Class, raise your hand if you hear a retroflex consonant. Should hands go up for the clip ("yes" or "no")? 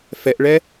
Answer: yes